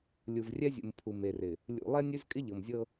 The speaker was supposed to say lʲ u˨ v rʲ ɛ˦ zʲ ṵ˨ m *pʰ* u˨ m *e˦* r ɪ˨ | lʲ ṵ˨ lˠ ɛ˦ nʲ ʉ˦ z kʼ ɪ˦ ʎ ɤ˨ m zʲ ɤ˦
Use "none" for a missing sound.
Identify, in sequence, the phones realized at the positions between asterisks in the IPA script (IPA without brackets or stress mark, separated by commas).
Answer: pʰ, e˨